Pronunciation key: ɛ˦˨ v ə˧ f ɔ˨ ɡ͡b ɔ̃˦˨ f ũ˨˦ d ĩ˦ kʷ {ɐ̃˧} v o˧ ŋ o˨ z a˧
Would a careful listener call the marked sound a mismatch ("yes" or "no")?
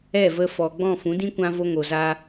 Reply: yes